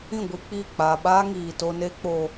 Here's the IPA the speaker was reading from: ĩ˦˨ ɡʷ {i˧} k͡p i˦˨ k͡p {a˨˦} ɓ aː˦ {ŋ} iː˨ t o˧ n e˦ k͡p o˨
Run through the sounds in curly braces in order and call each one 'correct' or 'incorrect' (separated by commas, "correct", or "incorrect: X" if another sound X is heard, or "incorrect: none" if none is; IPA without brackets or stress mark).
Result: correct, incorrect: a˨, correct